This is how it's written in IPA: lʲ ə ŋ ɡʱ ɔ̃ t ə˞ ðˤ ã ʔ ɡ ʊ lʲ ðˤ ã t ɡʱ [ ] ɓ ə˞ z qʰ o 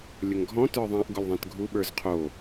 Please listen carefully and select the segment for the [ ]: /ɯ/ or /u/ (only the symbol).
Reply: u